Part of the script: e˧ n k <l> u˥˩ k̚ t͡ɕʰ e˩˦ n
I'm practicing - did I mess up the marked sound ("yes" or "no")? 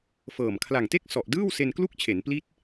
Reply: no